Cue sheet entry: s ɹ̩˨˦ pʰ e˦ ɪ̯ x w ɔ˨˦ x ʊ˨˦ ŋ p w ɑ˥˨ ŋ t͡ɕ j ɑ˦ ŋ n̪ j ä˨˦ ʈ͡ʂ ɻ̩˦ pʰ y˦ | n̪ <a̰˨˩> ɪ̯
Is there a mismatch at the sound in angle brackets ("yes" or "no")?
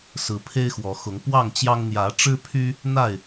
yes